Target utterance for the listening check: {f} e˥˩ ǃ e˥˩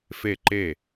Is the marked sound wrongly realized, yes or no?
no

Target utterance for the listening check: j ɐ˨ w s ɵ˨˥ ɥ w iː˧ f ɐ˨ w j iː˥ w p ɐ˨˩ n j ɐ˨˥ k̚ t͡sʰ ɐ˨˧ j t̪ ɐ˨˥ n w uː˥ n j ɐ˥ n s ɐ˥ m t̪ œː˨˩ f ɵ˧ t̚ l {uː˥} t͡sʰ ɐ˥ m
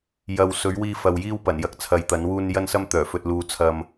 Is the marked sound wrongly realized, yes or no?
yes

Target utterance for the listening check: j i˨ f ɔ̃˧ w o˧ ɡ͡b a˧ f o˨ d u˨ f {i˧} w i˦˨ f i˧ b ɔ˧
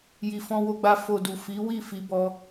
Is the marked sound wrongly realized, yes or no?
yes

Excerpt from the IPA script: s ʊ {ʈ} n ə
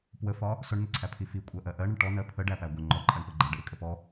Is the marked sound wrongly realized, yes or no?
yes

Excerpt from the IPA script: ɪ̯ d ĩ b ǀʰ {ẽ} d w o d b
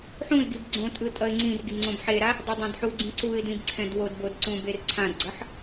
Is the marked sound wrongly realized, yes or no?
yes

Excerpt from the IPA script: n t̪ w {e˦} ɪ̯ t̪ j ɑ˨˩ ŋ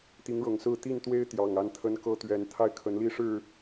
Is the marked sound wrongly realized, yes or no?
no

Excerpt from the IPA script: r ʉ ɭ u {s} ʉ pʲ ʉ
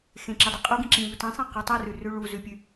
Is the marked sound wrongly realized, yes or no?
yes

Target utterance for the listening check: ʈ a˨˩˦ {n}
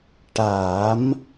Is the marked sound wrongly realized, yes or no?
yes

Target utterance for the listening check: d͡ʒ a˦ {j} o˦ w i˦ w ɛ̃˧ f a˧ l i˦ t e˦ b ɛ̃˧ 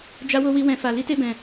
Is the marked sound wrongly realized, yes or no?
yes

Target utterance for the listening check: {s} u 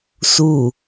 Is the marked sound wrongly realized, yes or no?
no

